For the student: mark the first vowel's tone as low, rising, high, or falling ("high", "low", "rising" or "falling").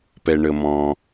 low